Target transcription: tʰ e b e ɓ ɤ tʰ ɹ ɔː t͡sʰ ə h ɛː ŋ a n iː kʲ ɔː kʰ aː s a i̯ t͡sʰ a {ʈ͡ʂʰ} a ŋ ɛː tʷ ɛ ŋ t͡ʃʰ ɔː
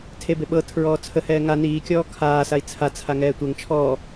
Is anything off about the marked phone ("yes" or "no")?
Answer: yes